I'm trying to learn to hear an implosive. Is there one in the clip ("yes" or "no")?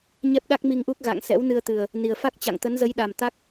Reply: yes